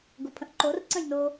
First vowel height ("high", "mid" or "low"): mid